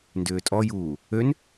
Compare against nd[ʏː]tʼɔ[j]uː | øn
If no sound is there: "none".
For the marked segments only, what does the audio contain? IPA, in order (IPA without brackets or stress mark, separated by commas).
ʏː, j